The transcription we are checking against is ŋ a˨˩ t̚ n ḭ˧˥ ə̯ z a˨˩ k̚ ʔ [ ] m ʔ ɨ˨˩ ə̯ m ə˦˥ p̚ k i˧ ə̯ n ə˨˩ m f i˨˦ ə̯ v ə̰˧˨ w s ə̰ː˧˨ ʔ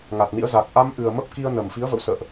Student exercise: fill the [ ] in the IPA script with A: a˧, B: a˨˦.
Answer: A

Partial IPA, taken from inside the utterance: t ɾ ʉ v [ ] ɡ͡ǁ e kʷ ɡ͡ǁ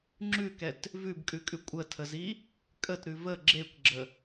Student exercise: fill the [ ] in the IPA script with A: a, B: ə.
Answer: B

